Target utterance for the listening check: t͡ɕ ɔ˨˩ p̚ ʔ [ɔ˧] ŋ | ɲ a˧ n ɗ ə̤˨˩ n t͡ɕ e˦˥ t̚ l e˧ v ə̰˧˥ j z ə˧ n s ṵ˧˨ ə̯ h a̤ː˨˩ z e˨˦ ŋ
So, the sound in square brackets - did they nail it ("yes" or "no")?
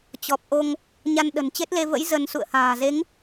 no